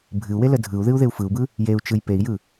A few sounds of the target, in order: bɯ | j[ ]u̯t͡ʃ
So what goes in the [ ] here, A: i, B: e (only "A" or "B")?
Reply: B